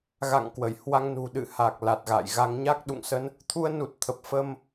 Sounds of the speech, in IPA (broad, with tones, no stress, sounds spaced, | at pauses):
ɣ a̰˧˨ ŋ k w ə˧˩ j h w a˧ ŋ n ṳ˨˩ ɗ ɨ̰˧˨ h a˨˩ k̚ l a˨˩ t̚ ɣ a̰ː˧˨ j ɣ a˧ ŋ ɲ a˦˥ k̚ ɗ ṵ˧˨ ŋ s ə˧ n | t̪ʰ u˧ ə̯ n u˨˩ t̚ t̪ʰ ə˨˩ p̚ f ə˧ m